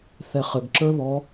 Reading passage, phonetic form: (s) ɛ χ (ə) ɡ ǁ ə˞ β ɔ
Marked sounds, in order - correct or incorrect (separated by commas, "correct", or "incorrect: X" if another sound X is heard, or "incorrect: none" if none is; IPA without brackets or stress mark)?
incorrect: θ, correct